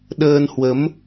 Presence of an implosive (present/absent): present